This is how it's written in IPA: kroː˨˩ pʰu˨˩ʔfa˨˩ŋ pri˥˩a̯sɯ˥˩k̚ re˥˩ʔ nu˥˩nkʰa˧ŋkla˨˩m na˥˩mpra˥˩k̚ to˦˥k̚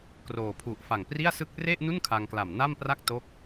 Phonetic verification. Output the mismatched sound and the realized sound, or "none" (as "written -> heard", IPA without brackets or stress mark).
none